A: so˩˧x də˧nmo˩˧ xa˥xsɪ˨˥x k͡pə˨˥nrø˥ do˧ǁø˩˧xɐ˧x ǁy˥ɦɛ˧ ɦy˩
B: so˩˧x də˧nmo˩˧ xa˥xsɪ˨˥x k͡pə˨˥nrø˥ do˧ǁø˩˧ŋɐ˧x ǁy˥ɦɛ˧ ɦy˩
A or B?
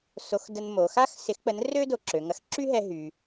B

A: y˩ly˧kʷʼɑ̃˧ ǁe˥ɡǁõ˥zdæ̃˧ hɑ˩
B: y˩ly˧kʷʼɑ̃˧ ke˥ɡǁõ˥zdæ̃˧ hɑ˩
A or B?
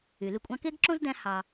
B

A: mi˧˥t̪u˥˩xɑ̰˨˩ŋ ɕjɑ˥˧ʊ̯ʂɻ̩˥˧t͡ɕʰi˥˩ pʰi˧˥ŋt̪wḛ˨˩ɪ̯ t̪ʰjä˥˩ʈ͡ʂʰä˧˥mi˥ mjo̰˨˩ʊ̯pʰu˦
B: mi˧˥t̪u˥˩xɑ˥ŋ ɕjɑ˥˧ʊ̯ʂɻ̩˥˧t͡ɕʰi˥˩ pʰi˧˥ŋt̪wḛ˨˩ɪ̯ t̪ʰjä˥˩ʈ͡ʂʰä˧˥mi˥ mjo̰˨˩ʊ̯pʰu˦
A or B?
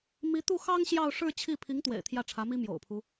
B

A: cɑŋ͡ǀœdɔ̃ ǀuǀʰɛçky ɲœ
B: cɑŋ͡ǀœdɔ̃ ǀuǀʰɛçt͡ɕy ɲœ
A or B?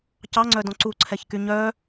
A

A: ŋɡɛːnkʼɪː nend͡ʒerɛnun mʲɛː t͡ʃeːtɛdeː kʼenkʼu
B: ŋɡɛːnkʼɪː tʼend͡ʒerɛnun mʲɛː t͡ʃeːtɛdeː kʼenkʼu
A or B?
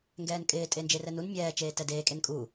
B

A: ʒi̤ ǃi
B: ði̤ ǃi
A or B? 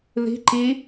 B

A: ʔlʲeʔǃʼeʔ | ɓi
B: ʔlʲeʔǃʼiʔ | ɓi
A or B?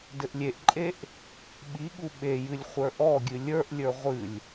A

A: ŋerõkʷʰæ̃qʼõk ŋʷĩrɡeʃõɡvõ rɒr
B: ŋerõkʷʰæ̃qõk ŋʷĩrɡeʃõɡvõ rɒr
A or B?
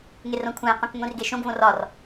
B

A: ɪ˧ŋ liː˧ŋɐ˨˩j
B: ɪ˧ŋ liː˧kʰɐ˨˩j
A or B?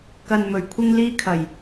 B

